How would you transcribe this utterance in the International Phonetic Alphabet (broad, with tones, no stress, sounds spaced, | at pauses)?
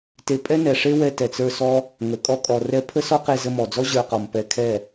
t e˧ pʼ ɛ˦ n ɛ˨ ʂ e˦ w ɛ˧ t ɛ˨ t͡s ə˞˧ s ɔ˦ | ŋ ə˨˦ kʼ ɔ˦ kʼ ɔ˧ r ɛ˦ pʰ ə˦ s ɔ˦ q e˧ z ə˧ m ɔ˨ d͡z ɔ˦ ʑ ə˞˧ q ɔ˨ m p ɛ˧ kʰ ɛ˦˨